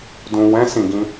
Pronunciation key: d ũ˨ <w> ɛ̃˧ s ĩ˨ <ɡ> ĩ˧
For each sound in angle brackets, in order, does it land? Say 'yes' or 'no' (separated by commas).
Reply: yes, yes